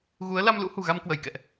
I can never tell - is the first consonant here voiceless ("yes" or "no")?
no